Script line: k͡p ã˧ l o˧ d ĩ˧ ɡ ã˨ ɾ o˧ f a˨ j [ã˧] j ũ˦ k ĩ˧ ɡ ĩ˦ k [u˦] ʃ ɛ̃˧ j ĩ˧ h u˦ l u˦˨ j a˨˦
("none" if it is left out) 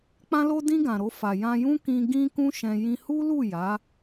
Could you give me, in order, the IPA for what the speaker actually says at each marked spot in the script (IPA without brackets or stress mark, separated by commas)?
ã˧, ũ˦